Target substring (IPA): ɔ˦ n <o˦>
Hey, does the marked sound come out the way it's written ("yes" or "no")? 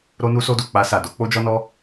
no